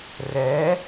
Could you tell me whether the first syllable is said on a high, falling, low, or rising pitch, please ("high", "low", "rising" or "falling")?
rising